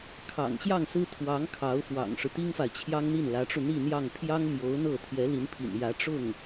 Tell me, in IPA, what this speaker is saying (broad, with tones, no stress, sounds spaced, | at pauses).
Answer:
kʰ ɑ̰˨˩ ŋ ɕ j ɑ˥˩ ŋ s ɹ̩˥ t̪ʰ w ɑ˧˥ ŋ kʰ ɑ˧˥ ʊ̯ f w ɑ̰˨˩ ŋ ʂ ɻ̩˦ t̪ i˥ ŋ f a˨ ɪ̯ t͡ɕʰ j ɑ˥ ŋ n̪ i˥˩ n l ä˧˥ ʈ͡ʂ u˧ n̪ i˥˧ n̪ j ɑ˥˩ ŋ pʰ j ɑ˥ ŋ m j o˧˥ ʊ̯ n̪ ɤ˥˩ t̪ʰ j ɛ˧˥ l i˧˥ n pʰ ḭ˨˩ n j ä˧˥ ʈ͡ʂ ʊ˥˩ ŋ